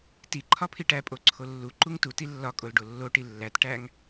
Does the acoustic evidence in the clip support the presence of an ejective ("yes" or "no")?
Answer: yes